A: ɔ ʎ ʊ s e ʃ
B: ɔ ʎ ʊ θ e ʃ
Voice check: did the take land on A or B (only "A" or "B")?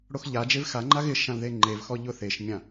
B